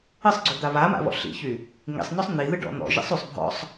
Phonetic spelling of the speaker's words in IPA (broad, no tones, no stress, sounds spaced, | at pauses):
ɨ sˤ ɡ͡ǀ y d̪ a β a m a̰ β ɔ̰ ɬ ḭ ç y | ŋ ḭ sˤ n̪ ɔ sˤ n̪ i ð ɨ ɖ ɔ̰ n̪ ɔ̰ ʒ ḭ sˤ y sˤ bʱ ɔ̰ sˤ